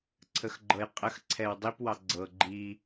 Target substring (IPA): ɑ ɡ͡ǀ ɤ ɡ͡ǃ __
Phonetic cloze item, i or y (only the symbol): i